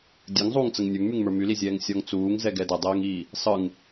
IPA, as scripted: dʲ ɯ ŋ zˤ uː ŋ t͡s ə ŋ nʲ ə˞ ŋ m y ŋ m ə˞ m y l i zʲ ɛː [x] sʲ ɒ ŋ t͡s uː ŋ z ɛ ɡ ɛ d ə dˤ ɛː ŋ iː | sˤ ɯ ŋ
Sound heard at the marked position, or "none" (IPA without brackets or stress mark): ŋ